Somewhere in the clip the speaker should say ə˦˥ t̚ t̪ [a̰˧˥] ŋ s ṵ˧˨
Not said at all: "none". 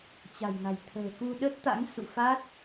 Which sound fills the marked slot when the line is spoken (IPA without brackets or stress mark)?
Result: a̰˧˥